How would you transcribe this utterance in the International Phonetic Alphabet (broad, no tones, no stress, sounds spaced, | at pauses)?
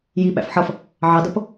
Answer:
j i ɓ æ̰ f ħ ʌ f | ʕ ɑ d ʌ p